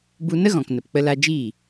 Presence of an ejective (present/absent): absent